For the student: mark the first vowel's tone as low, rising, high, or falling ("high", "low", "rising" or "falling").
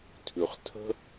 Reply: low